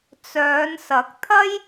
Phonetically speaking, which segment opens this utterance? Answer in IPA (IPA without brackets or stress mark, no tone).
t͡s